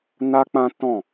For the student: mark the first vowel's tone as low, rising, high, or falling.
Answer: high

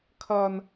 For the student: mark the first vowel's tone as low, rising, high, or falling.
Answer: high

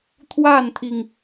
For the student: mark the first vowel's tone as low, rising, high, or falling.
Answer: falling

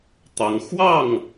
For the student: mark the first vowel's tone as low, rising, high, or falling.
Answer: rising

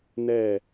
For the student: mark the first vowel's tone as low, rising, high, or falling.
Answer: falling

